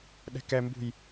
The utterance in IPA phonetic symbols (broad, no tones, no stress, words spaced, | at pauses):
ɗɛ̤kɛmbṳj